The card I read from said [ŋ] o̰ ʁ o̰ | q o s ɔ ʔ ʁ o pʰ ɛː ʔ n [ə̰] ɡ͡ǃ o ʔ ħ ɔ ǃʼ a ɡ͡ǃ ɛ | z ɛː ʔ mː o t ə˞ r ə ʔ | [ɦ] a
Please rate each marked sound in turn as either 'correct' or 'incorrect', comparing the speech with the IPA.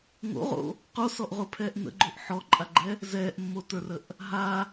correct, correct, correct

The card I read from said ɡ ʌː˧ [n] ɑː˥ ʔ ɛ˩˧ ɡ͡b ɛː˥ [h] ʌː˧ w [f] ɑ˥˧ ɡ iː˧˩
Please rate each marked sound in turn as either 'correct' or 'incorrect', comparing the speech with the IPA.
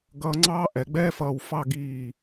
incorrect: ŋ͡ǀ, incorrect: f, correct

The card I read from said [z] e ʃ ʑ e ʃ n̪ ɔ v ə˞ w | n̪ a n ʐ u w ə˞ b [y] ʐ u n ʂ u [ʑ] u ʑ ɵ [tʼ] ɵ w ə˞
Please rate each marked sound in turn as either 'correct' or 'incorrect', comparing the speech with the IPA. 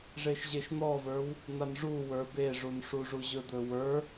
incorrect: ʐ, incorrect: e, incorrect: ʐ, incorrect: d̪

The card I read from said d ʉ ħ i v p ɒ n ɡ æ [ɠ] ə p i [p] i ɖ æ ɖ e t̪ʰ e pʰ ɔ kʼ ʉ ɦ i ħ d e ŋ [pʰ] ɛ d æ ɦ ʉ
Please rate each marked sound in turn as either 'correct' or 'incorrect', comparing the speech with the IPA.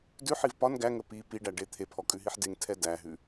incorrect: ŋ, correct, incorrect: tʰ

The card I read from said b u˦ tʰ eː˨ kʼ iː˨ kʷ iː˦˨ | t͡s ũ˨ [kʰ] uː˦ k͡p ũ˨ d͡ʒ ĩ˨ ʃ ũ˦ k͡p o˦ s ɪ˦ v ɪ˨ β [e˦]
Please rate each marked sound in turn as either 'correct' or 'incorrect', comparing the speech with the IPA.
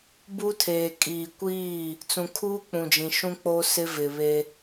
correct, correct

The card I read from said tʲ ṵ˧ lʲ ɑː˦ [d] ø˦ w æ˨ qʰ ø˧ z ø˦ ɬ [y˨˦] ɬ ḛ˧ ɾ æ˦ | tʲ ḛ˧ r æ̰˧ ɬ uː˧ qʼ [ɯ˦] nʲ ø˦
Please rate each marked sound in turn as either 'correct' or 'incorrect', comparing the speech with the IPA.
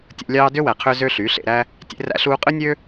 correct, correct, correct

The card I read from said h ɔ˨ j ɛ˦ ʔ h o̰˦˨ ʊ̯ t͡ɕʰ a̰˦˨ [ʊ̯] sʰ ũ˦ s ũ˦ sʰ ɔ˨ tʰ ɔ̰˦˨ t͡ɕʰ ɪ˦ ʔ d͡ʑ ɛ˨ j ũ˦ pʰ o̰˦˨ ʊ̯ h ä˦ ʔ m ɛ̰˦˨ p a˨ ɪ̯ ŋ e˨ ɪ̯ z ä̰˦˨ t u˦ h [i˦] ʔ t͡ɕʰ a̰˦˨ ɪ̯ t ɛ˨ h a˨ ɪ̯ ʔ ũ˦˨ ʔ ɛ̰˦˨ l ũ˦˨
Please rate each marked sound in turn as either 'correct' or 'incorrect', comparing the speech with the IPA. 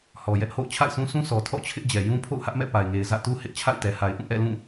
incorrect: ɪ̯, incorrect: ɪ˦

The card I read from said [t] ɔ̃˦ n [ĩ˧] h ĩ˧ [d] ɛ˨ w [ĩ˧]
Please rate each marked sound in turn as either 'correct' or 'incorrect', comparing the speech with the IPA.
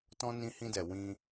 correct, correct, correct, correct

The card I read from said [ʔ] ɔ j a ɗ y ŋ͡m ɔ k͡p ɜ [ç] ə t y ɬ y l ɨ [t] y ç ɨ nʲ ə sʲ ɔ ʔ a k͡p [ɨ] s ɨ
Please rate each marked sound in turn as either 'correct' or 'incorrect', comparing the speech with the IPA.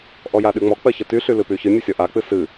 correct, correct, incorrect: p, correct

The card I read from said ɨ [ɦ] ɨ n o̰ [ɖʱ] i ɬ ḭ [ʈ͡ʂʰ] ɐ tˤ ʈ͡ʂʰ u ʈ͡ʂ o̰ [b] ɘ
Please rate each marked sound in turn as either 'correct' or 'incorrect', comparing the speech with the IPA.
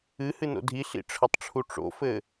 incorrect: h, incorrect: dʱ, correct, incorrect: f

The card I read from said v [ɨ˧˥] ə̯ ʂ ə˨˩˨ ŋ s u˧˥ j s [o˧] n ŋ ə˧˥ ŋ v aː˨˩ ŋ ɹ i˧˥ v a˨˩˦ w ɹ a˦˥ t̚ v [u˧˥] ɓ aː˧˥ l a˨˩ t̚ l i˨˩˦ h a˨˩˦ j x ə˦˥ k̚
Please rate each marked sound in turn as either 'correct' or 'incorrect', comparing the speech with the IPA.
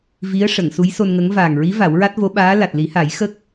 incorrect: i˧˥, correct, incorrect: o˧˥

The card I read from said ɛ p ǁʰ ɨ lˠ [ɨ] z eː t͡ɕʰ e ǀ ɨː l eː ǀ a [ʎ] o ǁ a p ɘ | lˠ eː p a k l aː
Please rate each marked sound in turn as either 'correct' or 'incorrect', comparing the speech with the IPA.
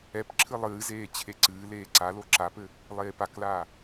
incorrect: ɨː, incorrect: l

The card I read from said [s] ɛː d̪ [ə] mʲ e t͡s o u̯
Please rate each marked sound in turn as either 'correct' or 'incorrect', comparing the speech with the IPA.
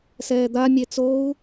correct, incorrect: a

